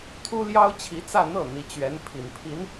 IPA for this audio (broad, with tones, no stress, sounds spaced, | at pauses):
t̪ʰ u˥ l j ɑ˥ ʊ̯ t͡ɕʰ i˧˥ t͡s ä˥˧ n̪ ɤ˥˩ n̪ i˧˥ t͡ɕ ɥ ɛ˧˥ n pʰ i˨˩ n pʰ i˧˥ n